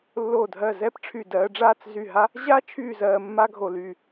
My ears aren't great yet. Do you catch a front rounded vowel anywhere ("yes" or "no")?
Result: yes